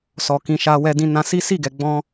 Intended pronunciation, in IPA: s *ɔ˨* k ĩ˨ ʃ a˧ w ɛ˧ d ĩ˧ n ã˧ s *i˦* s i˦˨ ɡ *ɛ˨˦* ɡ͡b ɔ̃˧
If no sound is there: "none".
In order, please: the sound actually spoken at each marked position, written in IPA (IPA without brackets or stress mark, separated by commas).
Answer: ɔ˨, i˦, ɛ˨